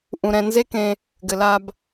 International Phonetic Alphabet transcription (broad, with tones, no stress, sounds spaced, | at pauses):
ʔ ũ˨ ɾ ɛ̃˨ n z e˦ k ẽ˧ | ɡ ɘ˨ l a˧ b